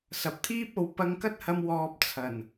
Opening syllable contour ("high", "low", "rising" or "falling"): low